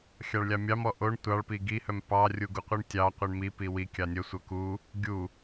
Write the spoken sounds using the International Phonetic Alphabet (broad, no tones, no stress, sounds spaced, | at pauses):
xʲ ɑ ɭ lʲ ɑ mʲ ɑ m ɔ ʔ o ɳ tʷ ɑ ɭ p i ɡ i h œ m p ɑ rʲ u ɡ u qʷ i ɳ tʲ ɑ qʷ i ɳ m i p i w i kʲ ɑ nʲ œ sʷ œ k u | ɡʲ u